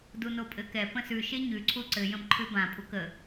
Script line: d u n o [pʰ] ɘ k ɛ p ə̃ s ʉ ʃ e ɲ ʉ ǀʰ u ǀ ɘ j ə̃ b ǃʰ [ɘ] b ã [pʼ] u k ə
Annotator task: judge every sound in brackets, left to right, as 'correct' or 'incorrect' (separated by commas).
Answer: incorrect, incorrect, correct